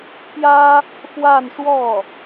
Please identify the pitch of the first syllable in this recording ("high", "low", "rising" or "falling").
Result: high